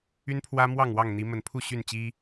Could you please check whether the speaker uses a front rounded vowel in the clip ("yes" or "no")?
yes